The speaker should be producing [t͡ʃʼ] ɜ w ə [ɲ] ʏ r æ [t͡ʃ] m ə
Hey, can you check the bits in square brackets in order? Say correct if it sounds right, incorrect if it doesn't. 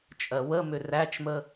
correct, incorrect: m, correct

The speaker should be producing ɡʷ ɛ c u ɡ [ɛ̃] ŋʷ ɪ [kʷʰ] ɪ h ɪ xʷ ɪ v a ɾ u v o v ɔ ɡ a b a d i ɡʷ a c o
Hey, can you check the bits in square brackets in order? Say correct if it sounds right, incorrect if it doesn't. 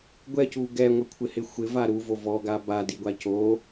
incorrect: ɛ, correct

